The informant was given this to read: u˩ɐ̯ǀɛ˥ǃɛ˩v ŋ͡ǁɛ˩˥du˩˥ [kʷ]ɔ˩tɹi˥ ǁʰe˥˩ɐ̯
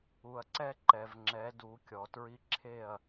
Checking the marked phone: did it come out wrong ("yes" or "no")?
yes